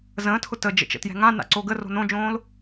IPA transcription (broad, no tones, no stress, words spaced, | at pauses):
zə̃ːtʰʊ təd͡ʒə̰t͡ʃə̰tjɛ̤ ŋãna̰ǀo ɡəro̤ nõd͡ʒõːl